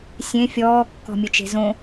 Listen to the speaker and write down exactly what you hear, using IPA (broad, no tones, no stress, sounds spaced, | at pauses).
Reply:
sʲ ẽ fʲ ɔː kː ɔ̤ mʲ ɵ t͡ʃ e̤ z õ